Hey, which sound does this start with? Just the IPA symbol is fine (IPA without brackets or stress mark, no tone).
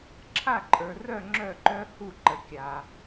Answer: ǁʰ